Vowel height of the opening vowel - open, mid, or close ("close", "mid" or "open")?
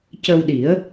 mid